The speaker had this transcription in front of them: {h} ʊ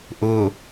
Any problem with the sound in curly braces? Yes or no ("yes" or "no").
yes